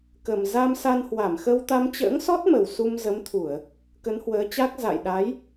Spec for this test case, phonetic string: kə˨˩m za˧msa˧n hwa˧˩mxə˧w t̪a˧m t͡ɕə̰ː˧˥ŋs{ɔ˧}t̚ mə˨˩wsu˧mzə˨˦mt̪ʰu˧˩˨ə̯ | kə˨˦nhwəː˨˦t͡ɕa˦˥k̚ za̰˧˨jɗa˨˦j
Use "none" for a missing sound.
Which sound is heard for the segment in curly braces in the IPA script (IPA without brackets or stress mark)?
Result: ɔ˦˥